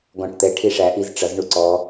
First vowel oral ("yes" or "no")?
no